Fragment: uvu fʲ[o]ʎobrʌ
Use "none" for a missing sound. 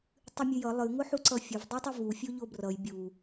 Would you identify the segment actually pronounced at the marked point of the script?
o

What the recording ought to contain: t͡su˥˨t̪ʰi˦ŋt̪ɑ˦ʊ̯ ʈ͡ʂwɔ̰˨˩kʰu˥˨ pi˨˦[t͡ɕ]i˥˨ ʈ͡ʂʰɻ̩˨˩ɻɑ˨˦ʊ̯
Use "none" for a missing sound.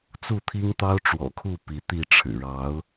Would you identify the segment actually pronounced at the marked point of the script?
t̪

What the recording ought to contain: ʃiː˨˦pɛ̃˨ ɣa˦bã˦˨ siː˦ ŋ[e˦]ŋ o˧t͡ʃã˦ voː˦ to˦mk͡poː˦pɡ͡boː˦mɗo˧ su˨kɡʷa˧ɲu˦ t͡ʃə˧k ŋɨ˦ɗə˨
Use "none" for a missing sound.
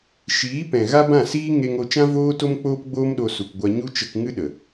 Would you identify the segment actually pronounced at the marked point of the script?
e˧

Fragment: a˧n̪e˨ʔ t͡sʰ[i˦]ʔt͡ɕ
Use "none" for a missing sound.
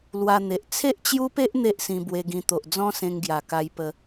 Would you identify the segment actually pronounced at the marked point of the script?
e˦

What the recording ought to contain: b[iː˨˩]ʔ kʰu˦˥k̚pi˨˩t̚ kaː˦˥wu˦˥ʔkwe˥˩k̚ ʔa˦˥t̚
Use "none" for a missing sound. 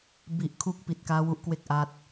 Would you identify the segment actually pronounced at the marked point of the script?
i˨˩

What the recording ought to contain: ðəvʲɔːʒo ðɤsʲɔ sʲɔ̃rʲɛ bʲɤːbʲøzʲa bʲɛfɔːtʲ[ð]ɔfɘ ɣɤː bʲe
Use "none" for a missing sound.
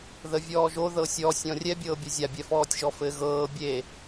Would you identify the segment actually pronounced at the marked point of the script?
ʒ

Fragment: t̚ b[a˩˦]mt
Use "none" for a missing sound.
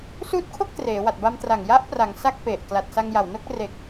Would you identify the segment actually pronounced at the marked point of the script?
a˧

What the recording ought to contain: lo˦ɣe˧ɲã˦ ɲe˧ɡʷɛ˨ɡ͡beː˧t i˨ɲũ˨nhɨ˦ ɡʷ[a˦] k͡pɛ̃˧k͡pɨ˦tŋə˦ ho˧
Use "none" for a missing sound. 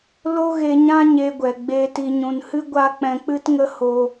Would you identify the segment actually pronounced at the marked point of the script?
a˦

